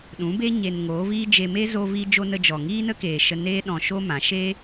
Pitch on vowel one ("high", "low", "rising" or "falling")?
rising